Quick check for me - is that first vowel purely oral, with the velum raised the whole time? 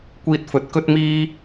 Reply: yes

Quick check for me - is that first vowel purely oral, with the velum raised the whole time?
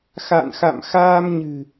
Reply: yes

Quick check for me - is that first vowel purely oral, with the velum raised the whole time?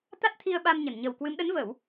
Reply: yes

